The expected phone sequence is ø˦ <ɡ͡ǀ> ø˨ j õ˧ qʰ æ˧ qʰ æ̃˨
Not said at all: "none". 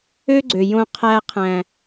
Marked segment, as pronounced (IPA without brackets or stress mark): ɡ͡ǀ